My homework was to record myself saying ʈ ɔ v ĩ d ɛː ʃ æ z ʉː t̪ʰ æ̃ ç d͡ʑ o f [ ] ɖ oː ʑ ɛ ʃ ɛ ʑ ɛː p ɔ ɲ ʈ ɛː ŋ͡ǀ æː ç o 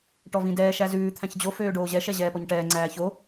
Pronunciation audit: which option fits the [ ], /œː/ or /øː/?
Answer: øː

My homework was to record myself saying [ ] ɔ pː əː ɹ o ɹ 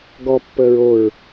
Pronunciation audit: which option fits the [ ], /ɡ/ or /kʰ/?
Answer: ɡ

